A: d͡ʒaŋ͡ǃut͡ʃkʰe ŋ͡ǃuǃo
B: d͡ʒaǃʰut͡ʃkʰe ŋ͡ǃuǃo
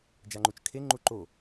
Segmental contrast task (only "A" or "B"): A